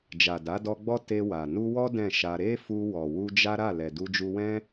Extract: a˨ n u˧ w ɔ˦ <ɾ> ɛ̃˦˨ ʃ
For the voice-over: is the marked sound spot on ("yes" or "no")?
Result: no